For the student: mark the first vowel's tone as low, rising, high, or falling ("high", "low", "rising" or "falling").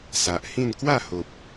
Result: low